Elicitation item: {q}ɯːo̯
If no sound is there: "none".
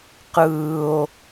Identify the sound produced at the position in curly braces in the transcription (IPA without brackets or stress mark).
q